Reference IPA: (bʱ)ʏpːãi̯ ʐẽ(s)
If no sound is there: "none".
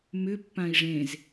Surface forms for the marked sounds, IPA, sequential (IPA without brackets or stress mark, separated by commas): m, z